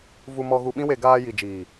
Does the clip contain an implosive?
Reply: yes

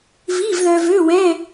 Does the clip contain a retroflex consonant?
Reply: no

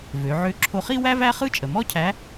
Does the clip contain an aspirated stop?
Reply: yes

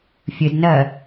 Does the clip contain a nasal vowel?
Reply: no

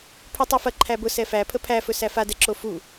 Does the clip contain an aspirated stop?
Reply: yes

